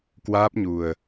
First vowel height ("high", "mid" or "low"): low